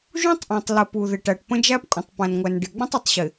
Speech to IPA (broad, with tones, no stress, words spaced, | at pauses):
ʒũ˦tˤʔɔ̃˨tˤlə˨ pu˨ðɪ˨ʈæ˨ʈpə̃˦ d͡ʒæ˦pkʷʼə̃˨tˤpæ̃˨nŋʷæ˨n ɖɪ˨ɡ͡bə̃˦tˤʊ˨tˤɕɪ˨